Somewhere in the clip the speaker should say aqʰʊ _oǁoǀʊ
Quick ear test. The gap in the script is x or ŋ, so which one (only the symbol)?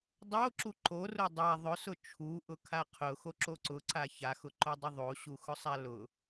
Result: x